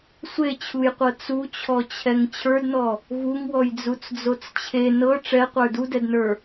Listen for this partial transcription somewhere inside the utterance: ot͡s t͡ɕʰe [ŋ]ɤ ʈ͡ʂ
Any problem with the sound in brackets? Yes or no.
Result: yes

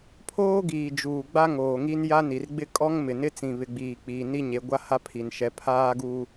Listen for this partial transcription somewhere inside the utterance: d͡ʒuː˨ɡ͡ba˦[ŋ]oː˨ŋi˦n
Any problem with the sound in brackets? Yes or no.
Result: no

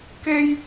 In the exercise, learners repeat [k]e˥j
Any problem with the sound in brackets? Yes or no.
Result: no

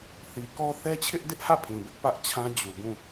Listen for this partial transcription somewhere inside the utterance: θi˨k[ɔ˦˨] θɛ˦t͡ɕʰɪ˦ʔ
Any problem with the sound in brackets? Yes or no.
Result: yes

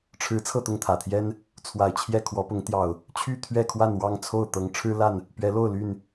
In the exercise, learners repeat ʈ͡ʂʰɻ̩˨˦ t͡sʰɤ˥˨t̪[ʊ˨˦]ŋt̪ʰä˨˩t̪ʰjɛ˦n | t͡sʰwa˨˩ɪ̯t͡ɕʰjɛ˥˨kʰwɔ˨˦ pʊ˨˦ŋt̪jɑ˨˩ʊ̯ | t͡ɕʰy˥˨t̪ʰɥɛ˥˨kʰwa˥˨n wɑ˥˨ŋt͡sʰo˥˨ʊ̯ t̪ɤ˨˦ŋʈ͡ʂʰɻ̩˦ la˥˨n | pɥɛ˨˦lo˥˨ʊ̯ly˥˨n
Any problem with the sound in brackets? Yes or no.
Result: yes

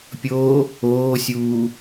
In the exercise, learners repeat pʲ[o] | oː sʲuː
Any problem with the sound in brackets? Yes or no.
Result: yes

